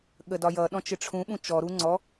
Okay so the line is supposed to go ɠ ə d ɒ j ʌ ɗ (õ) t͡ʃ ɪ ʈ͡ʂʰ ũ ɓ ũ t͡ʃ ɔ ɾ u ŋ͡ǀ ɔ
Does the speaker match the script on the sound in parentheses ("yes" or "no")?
no